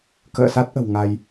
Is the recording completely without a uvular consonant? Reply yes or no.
yes